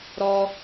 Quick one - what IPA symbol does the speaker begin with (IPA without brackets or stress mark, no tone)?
ɾ